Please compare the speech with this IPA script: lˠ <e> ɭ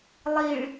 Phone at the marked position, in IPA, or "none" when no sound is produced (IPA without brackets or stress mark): i